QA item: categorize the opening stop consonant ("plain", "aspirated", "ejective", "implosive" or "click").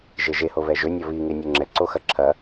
click